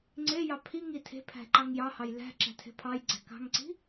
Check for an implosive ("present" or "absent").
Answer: absent